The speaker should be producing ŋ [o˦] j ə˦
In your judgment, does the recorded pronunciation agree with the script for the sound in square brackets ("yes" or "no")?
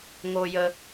yes